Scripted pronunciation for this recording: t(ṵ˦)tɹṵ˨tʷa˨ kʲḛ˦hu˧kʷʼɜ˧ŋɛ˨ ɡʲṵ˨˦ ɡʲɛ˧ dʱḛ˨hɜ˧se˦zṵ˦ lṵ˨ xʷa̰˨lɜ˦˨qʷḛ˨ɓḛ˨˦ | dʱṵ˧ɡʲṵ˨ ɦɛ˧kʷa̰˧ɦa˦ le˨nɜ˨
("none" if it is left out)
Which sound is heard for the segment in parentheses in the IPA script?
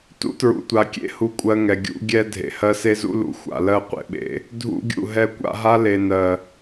ṵ˦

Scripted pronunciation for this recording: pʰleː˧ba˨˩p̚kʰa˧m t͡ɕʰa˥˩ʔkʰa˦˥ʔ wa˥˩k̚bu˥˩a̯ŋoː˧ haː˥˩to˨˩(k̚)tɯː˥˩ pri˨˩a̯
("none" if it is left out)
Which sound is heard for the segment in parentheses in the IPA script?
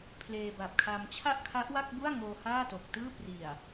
k̚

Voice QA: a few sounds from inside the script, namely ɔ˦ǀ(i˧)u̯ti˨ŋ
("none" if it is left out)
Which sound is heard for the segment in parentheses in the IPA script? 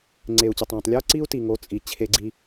i˦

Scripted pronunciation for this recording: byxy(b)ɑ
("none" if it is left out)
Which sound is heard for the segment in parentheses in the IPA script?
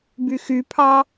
pʰ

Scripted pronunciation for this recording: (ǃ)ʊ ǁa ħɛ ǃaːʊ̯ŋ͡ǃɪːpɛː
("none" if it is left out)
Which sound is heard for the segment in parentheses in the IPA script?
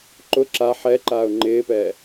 ǃ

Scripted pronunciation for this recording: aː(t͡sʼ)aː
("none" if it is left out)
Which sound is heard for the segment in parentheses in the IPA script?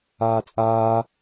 t͡sʼ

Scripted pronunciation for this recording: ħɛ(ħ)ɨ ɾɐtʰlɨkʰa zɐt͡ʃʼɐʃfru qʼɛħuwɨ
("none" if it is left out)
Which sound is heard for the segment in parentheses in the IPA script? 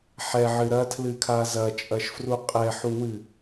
ʕ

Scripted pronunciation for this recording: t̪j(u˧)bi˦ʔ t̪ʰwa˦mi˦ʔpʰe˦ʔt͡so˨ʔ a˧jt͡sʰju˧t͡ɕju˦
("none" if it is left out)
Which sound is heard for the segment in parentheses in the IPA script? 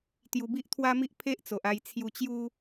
u˧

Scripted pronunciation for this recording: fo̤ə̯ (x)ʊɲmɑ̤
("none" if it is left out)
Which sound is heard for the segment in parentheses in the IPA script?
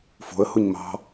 h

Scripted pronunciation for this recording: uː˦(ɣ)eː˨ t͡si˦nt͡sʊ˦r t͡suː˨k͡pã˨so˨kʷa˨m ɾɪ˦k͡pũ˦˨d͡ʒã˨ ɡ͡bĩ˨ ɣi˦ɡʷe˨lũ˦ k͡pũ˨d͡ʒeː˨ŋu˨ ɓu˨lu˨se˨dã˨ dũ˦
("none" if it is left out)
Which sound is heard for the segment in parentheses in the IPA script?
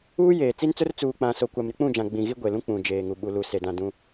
j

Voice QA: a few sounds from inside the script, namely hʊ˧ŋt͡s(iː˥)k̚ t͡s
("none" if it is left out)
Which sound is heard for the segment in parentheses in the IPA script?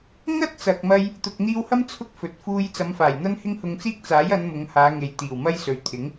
iː˥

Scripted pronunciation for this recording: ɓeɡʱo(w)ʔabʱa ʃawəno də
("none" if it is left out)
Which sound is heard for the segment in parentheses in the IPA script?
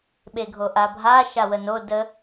none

